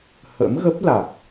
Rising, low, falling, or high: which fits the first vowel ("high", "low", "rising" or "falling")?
rising